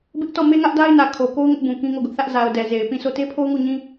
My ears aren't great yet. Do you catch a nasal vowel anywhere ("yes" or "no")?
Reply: yes